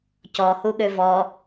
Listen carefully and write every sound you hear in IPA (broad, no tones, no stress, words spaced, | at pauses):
cɔhu ɠøvɔ